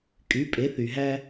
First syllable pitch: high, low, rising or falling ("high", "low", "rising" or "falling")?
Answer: rising